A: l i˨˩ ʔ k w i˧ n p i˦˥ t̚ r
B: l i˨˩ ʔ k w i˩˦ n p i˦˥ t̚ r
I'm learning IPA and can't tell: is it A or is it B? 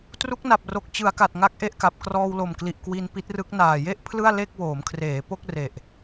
A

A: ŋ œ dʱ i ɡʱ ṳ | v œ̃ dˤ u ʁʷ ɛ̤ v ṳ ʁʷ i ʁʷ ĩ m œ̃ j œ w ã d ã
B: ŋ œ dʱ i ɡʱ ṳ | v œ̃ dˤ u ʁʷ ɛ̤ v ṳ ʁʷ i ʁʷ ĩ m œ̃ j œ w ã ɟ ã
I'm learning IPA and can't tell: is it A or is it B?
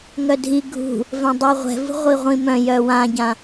B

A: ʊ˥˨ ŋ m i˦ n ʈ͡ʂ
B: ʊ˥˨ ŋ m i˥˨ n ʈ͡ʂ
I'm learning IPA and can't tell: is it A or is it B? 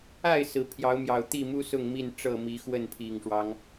B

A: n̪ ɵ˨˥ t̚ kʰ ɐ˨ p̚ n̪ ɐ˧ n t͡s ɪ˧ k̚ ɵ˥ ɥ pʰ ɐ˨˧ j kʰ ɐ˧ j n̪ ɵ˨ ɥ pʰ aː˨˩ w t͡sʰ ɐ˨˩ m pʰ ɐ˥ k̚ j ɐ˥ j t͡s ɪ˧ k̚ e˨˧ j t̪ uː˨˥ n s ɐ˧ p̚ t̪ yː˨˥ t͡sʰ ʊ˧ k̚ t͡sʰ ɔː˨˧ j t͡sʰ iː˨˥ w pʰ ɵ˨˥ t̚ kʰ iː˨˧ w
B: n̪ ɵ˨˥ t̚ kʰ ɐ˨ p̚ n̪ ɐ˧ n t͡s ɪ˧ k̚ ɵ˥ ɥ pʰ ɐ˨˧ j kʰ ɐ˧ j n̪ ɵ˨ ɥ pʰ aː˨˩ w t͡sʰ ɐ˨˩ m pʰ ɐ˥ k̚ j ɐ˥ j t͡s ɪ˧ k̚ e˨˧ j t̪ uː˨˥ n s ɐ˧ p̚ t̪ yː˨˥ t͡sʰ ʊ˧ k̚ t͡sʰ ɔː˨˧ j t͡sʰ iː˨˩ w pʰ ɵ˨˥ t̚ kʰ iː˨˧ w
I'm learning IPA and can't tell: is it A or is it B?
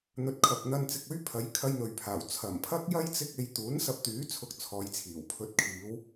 B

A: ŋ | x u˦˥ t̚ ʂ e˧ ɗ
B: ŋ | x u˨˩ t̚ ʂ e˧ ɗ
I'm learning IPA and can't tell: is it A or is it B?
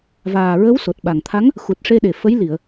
B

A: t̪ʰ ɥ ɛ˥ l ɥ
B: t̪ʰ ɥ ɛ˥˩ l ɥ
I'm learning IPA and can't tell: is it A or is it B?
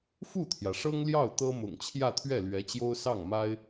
B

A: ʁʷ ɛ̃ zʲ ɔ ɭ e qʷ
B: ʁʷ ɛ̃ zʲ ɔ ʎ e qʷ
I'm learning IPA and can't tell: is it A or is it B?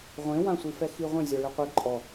A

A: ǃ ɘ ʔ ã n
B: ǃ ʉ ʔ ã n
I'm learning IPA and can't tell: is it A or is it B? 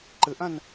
A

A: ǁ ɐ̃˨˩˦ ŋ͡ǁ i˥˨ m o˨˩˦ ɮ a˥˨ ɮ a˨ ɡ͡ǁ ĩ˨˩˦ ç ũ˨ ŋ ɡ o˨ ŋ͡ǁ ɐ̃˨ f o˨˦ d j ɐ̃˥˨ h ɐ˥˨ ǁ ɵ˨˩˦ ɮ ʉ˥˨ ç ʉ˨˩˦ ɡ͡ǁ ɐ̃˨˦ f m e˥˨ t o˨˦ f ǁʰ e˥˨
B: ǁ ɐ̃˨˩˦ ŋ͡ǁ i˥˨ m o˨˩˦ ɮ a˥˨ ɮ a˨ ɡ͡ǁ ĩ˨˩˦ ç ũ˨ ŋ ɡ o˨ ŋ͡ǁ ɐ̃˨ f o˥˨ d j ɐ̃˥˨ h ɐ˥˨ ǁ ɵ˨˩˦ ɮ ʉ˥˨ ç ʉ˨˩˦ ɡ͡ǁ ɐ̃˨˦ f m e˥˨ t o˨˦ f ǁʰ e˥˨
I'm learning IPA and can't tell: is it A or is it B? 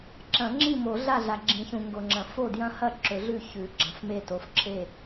B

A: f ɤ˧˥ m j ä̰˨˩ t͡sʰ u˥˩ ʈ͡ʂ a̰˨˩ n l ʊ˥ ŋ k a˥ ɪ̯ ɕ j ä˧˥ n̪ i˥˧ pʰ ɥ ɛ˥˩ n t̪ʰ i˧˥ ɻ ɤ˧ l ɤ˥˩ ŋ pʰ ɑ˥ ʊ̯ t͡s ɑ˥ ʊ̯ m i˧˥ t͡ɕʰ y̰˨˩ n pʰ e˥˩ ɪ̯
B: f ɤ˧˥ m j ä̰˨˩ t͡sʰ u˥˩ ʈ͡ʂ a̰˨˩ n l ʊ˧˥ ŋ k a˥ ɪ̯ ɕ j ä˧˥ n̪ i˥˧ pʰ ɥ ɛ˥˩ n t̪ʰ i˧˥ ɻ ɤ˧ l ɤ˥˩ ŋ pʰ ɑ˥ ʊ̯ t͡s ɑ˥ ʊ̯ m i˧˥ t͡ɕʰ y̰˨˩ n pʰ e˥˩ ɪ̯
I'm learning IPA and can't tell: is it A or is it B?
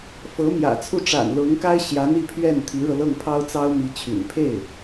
B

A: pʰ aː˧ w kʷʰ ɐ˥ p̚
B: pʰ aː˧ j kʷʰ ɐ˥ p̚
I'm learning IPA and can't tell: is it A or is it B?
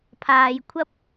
B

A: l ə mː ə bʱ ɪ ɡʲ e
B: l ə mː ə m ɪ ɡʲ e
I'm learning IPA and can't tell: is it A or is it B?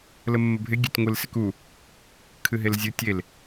A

